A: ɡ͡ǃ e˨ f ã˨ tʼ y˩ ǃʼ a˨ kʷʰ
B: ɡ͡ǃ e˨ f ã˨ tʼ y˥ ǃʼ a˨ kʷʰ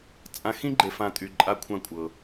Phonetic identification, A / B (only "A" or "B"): A